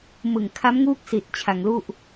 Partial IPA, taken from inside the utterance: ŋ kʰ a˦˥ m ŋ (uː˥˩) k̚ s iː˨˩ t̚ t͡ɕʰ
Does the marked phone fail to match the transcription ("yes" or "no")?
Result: yes